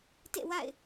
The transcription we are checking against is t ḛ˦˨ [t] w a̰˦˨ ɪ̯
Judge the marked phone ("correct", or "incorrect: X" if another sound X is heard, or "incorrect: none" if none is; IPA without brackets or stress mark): incorrect: none